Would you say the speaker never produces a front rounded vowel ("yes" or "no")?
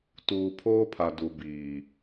yes